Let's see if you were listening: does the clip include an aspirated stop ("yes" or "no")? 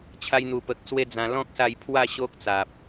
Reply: yes